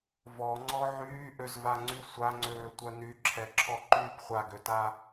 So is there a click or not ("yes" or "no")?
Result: yes